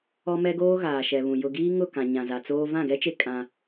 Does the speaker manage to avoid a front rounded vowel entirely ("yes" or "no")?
yes